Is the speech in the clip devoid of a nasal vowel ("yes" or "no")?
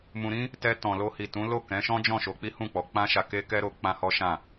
no